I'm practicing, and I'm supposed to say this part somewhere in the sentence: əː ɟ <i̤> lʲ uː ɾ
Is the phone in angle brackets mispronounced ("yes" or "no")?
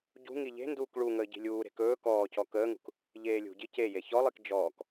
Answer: no